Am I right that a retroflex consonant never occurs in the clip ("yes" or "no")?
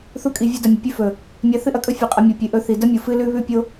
yes